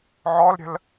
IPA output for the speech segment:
ʕ ɔ l ɾʲ ə̤ l

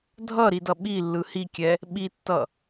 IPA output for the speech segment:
dʱ ʌ ɾ i d ʌ ɓ i lː ɯ h i kʲ ɛ | ɓ i tː ʌ

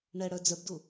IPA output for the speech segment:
ɳ ɛ ɽ œ d͡z œ b d u

